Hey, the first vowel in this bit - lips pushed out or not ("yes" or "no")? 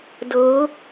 no